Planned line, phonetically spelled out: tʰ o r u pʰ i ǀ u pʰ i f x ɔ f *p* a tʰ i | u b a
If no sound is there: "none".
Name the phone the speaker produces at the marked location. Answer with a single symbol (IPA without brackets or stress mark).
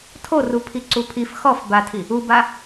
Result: b